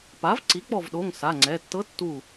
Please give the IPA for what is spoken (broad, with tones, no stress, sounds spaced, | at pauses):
p a˩˥ v ǀ i˩˥ k͡p ɔ˧˩ v ɗ o˩˧˩ ŋ s a˩˧˩ ŋ͡ǀ ɛ˩˧˩ tː ɤ˧˥ tː u˧˩